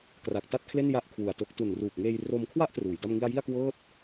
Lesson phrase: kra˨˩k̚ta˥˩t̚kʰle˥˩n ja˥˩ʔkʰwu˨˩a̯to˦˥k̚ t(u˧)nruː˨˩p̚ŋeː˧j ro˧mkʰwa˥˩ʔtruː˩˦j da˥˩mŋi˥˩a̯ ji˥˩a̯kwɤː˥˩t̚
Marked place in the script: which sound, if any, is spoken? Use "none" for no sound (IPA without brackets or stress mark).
u˨˩